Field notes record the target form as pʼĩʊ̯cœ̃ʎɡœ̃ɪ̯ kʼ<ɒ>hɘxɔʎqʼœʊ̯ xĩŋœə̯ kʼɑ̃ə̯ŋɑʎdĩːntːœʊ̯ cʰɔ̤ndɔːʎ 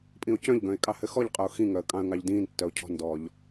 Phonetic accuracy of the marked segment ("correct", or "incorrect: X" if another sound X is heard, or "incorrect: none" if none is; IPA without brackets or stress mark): incorrect: ɑ